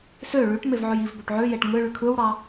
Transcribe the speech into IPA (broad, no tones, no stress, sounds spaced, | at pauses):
s ø ɭ y ʈ m e v ʕ ø j i v b ø ʈ ʕ ø j e ʈ ŋ ɯ ɭ y kʰ ɯ w ɽ ɑ